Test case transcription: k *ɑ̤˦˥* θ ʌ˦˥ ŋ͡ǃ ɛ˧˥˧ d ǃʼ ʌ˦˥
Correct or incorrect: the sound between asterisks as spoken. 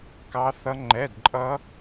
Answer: incorrect: ɑ˦˥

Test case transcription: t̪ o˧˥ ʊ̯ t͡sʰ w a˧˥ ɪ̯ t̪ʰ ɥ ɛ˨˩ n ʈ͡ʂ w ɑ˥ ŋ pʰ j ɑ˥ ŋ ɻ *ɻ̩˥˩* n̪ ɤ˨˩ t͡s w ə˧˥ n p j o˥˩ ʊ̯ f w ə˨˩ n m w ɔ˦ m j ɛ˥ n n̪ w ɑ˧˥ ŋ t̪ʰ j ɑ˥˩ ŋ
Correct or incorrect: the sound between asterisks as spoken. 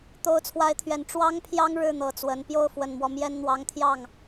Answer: correct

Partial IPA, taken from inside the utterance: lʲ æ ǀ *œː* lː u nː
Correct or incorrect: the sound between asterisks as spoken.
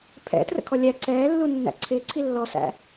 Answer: incorrect: ɛː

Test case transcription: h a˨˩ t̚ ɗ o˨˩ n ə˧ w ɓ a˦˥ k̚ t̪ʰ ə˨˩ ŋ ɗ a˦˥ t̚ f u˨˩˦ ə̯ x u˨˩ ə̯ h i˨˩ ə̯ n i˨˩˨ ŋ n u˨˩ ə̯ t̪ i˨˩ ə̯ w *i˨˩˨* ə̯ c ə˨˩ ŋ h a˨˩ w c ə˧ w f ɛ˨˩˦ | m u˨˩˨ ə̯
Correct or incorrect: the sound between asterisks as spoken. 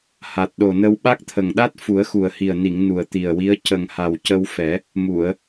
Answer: incorrect: i˧˥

